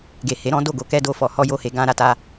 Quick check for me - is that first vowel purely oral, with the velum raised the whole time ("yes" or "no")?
yes